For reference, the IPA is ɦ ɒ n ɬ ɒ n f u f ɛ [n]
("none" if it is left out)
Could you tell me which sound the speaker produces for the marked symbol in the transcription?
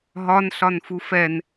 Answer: n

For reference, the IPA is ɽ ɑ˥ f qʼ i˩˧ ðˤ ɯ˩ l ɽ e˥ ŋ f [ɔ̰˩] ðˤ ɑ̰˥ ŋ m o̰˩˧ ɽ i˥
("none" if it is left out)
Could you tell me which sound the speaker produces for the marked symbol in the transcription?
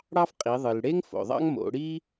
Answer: o̰˩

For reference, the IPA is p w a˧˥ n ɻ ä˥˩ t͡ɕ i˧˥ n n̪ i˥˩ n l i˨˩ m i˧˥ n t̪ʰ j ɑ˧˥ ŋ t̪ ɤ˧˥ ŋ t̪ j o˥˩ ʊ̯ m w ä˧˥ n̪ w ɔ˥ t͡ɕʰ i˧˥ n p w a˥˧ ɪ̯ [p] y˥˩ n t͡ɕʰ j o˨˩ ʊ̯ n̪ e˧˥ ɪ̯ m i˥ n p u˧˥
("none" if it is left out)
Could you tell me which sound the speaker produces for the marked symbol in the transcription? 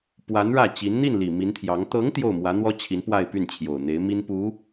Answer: p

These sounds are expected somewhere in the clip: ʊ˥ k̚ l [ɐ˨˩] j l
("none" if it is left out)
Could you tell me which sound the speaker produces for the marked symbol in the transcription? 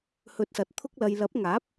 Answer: ɐ˧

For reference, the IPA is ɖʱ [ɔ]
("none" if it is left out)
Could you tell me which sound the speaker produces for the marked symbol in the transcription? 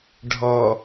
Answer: ɔ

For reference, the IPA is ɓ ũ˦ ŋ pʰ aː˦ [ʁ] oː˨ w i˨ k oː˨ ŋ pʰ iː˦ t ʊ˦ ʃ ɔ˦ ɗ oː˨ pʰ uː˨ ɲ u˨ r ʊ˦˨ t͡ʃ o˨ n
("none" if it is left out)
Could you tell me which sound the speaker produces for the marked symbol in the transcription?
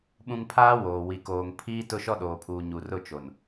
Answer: w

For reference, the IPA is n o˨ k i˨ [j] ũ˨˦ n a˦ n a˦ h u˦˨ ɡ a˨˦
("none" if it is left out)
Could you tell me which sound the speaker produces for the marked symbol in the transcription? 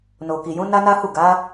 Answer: j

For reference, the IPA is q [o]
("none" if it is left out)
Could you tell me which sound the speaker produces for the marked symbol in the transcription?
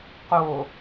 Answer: o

